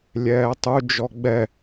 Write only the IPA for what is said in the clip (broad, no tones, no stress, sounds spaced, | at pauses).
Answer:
lʲ ɛː tˤ u d͡ʒ ɔ ɡ͡b ɛ